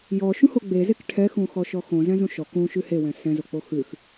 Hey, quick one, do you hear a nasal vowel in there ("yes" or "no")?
yes